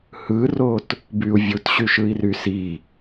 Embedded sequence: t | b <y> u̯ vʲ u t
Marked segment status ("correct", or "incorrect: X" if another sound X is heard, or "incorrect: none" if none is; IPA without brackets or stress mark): correct